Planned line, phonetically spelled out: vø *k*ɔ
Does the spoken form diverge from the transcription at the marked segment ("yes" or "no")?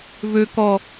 no